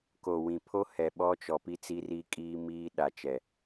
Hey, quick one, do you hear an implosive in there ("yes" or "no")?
yes